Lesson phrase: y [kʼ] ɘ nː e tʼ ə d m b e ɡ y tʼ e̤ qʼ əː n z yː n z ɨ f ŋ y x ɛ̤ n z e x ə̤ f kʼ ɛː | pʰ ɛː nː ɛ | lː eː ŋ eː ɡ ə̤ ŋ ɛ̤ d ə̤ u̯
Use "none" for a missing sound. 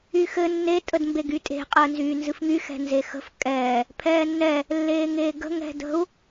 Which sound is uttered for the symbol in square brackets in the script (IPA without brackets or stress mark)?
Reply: x